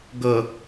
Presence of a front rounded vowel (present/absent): absent